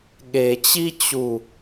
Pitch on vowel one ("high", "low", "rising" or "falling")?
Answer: low